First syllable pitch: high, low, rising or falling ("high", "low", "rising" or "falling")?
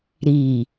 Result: low